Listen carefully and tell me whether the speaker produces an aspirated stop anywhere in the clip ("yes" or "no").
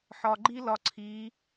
yes